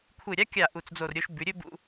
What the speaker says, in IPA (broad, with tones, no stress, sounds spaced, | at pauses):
kʷʰ ɨ˧˩ ɾʲ a˥ kʲ a˧˩ ʔ u˧˩ t͡s d͡z o˧˩ r ɾʲ o˧ ʃ b ʉ˩˧ ɾʲ ɵ˥ b ṵ˧